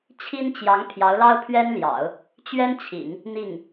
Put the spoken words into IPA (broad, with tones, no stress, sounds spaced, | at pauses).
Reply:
t͡ɕʰ i˥ n t͡ɕ j ɑ˧˥ ŋ pʰ j ɑ˧˥ ʊ̯ l ɑ˥ ʊ̯ pʰ ɥ ɛ˥ n l j ɑ̰˨˩˦ ʊ̯ | t͡ɕ ɥ ɛ˥ n t͡ɕʰ ḭ˨˩˦ ŋ | n̪ i˥˩ ŋ